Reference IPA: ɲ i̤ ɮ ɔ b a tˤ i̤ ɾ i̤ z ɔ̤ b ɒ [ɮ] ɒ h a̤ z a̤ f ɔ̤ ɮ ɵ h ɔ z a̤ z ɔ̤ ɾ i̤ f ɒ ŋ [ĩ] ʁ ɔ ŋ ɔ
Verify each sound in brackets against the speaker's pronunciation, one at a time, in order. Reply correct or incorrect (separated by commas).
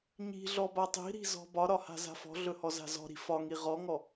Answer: incorrect, incorrect